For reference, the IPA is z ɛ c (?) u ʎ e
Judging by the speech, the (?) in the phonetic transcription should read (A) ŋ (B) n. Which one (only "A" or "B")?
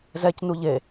B